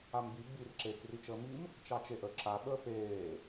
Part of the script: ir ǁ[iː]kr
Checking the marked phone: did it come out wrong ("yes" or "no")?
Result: yes